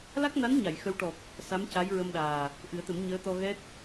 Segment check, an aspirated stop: absent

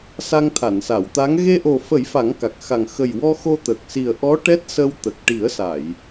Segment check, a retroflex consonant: present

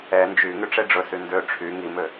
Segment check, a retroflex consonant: present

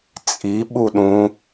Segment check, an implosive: present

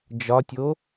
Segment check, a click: absent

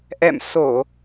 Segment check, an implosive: absent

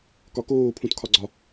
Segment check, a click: present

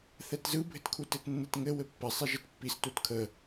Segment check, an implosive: absent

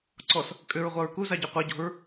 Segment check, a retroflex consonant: absent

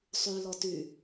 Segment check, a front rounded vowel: present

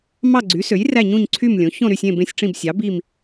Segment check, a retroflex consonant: present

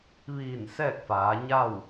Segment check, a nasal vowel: absent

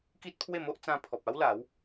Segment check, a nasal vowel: present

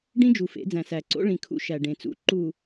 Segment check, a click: present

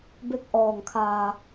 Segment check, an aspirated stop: present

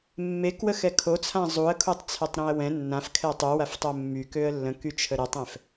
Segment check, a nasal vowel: present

